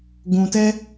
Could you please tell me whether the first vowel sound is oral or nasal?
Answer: nasal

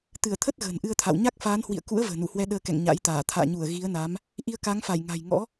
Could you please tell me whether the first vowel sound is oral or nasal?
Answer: oral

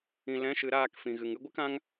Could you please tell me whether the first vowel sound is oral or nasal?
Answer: nasal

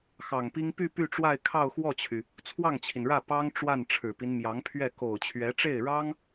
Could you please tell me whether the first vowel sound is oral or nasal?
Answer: oral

